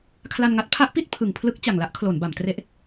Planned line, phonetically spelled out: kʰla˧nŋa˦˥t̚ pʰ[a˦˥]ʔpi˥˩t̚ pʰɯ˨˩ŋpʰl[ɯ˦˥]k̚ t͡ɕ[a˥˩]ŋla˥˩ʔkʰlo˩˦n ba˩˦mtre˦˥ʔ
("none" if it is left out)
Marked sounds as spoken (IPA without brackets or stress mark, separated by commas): a˦˥, ɯ˦˥, a˨˩